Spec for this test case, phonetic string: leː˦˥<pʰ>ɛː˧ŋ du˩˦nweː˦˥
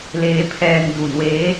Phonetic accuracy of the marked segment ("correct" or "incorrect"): correct